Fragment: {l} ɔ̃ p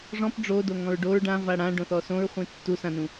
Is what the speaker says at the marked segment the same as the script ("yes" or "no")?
no